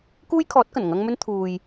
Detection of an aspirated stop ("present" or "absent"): present